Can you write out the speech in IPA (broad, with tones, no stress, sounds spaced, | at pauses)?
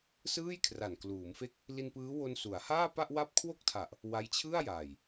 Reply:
s ɯː˥˩ j kʰ r a˨˩ n k l uː˩˦ m f e˦˥ k̚ | l i˧ n p ɯː˦˥ w o˧ n s u˩˦ a̯ h aː˥˩ p a˥˩ ʔ w a˥˩ p̚ kʰ w o˥˩ k̚ tʰ a˨˩ ʔ | w a˦˥ j t͡ɕʰ ɯ˥˩ a̯ j aː˨˩ j